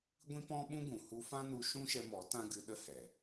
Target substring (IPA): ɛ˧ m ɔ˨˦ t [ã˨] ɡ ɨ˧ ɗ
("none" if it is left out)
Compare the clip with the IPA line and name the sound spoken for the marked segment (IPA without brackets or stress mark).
ã˦